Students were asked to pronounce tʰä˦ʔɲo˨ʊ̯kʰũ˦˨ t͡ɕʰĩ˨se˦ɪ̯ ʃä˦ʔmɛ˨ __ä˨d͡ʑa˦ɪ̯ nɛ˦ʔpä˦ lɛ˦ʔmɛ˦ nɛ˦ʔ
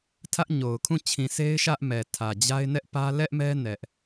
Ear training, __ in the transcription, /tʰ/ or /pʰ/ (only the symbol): tʰ